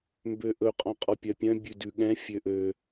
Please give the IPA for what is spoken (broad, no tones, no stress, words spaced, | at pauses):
mbøʔɵ qʼɔ̃qʼɔpʲœpʲœ̃ bʲʉdʉɠɛ̃ fʲøʔø